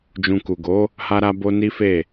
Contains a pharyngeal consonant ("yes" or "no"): no